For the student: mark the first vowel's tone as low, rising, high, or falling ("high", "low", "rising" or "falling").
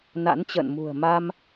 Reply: rising